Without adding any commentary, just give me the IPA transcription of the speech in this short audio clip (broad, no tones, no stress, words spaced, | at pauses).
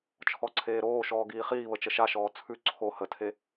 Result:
t͡ʃʰɔǀʰeːɾoːʃɔː ɡiːχiːβə t͡ʃəʃaʃɔː t͡sʰʉ ǀʰo hətʰe